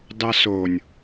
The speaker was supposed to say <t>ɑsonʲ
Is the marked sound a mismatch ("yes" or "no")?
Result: yes